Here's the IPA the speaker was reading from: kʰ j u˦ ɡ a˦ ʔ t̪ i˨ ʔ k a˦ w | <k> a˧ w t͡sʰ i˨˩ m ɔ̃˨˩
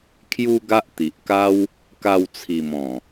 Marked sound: correct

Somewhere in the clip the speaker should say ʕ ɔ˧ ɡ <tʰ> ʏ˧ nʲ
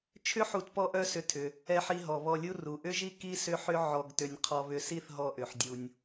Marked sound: incorrect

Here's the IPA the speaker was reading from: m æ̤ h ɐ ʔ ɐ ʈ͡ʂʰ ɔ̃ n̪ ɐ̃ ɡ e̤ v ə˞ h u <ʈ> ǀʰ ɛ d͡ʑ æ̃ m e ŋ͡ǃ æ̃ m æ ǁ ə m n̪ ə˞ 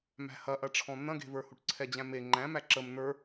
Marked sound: correct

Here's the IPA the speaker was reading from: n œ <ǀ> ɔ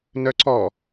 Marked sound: correct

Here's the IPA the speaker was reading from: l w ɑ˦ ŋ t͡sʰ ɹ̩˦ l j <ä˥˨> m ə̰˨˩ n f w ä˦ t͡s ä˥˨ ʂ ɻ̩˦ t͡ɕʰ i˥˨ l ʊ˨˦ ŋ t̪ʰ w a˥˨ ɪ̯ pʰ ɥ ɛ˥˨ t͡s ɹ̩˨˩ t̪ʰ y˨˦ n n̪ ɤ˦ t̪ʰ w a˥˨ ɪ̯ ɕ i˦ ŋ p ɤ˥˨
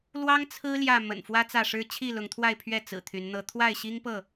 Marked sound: correct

